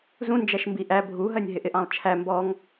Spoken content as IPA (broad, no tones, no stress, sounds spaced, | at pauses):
z ũ n d͡ʒ æ ʃ m b i ʔ æ bʱ u ɦ ɜ nʲ ɦ ɪ ʔ ɪ ʔ ɑ̃ lˠ t͡ʃʰ æ m b ɔ ŋ